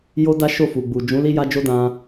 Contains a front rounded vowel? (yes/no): no